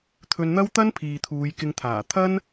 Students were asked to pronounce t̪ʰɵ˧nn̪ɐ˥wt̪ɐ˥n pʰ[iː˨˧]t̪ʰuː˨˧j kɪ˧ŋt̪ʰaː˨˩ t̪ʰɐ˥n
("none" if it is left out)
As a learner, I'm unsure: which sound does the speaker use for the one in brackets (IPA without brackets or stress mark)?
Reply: iː˨